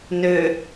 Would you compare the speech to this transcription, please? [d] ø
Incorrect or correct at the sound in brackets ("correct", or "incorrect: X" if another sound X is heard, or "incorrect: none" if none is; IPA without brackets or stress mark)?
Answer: incorrect: n